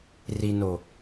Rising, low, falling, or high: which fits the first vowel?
low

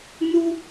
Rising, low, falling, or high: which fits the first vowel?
high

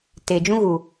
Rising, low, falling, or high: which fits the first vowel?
low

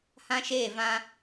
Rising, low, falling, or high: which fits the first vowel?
high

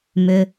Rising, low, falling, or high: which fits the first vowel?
low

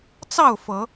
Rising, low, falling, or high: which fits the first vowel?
falling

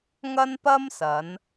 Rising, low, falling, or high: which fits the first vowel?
high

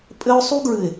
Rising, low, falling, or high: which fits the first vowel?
high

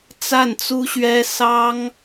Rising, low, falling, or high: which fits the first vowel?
falling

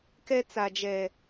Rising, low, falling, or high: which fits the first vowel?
high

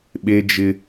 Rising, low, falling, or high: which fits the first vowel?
high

